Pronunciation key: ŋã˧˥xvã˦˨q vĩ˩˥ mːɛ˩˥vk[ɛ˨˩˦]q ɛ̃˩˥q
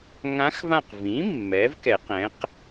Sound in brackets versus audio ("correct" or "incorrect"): correct